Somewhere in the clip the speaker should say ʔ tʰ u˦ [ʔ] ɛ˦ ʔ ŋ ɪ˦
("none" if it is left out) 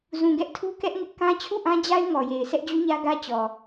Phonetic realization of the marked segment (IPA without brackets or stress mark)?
k